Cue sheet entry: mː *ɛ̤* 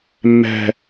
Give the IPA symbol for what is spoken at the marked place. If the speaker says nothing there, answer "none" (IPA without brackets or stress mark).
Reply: ɛ̤